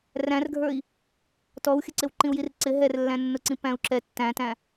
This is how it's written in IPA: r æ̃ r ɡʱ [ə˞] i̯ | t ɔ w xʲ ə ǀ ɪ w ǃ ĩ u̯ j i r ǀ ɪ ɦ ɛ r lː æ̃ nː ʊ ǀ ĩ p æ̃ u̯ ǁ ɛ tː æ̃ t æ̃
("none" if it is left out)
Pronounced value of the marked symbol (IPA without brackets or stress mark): ə˞